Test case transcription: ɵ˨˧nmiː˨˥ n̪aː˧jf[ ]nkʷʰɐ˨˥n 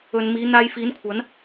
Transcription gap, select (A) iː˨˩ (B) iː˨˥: B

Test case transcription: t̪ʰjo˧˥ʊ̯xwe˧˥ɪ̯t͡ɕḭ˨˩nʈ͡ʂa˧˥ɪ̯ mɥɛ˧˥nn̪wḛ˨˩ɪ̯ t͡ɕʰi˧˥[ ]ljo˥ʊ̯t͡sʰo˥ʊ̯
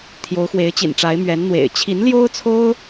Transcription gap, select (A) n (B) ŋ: A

